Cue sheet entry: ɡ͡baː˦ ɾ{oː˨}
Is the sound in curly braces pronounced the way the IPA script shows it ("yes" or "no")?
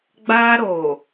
yes